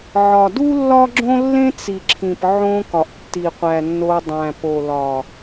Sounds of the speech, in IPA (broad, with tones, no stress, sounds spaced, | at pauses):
ʕ ɒ˨ d u˦ lː ɒ˦ ɡ͡ǁ õ˦ lː ẽ˦ t͡s i˨ ǁʰ ĩ˨ p ʕ õ˧ k ɒ˨ ʔ tː i˨ qʷ æ˨ nː o˧ dˤ æ̃˨ p o˨ l ɒ˨